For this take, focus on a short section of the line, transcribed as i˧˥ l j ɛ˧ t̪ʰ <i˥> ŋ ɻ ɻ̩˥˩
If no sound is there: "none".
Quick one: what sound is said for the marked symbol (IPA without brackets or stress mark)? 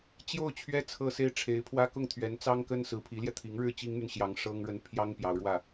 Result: i˧˥